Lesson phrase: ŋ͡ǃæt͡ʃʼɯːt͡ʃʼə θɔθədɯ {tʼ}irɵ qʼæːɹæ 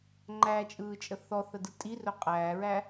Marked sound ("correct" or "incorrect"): correct